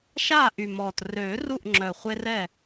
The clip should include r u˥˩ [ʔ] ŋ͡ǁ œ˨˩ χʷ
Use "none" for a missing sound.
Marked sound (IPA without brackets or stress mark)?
ʔ